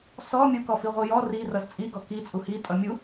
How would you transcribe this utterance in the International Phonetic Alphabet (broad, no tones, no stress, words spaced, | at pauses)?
sɔ mʲukɔfi ʁʷijɔ ri rʌzt͡sʼiɡɔ ki t͡sʼuhi tʼʌmʲu